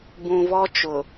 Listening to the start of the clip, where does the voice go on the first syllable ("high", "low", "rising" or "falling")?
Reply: low